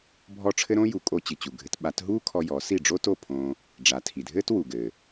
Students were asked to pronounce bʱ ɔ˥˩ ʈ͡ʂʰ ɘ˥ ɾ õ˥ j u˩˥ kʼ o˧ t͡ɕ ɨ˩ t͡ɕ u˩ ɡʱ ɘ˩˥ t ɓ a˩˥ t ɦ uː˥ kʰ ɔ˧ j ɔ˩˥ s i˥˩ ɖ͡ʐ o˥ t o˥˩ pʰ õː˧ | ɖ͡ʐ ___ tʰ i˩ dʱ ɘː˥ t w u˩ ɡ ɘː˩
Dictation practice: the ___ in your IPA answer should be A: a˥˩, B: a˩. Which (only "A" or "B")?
B